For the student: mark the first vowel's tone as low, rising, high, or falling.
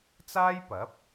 high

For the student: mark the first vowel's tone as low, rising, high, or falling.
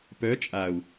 rising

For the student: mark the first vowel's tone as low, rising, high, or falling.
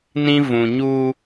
high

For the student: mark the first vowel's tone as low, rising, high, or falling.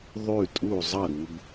falling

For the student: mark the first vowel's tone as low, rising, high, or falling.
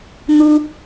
high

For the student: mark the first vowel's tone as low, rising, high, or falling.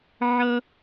high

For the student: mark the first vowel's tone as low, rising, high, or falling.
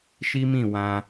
high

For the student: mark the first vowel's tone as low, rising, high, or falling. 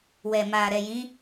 low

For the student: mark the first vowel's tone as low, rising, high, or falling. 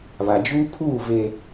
low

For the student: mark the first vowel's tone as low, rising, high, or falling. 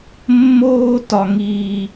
high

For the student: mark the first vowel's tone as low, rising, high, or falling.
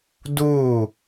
falling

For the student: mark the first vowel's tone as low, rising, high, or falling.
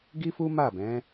high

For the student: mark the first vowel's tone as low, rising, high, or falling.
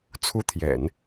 high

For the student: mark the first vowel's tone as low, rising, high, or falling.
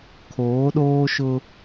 rising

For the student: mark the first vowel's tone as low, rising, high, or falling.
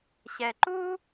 low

